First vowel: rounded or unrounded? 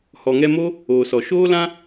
rounded